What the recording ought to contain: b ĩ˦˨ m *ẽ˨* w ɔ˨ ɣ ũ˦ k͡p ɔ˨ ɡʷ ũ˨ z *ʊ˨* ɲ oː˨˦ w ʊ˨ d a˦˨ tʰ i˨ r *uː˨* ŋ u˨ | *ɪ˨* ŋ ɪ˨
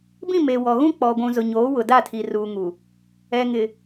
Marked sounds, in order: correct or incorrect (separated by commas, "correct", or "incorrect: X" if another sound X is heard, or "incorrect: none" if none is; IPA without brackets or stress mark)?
incorrect: e˨, correct, correct, incorrect: ɛ˨